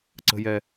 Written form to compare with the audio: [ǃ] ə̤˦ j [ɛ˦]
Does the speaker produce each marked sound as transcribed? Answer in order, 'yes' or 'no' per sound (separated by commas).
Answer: no, yes